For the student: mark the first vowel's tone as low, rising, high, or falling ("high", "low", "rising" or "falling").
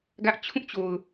high